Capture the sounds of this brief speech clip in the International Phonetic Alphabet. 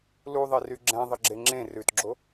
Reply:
l u ðˤ e r y ɡ͡ǁ ɛ̃ ðˤ ə ɡ͡ǁ e ŋ͡ǁ ẽ r ʉ t ɡ͡ǁ o

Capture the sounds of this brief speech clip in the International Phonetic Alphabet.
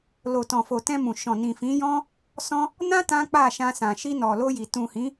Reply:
l o˨ t ɔ̃˨ f o˨ t ɛ̃˧ m ũ˨ ʃ ɔ̃˨ n ĩ˨ f ĩ˨˦ j ɔ̃˦ | s ɔ̃˦ | n ã˦ t ã˦ k͡p a˦˨ ʃ ã˧ s ã˨ ʃ i˧ n ɔ˨ l o˧ j i˨ t ũ˨ h ĩ˨˦

